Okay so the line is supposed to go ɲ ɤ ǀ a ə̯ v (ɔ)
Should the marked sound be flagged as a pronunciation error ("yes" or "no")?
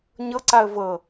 yes